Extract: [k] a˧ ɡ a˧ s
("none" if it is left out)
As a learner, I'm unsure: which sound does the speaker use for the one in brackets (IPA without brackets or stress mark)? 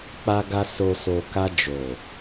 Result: k͡p